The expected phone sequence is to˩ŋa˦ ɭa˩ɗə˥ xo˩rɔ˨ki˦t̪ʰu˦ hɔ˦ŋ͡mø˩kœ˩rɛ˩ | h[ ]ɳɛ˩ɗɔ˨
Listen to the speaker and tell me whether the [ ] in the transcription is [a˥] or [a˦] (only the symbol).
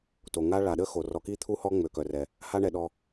a˦